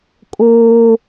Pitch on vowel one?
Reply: high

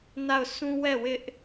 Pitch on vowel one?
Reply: falling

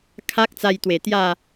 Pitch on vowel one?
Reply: high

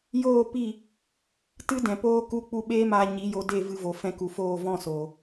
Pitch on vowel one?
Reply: falling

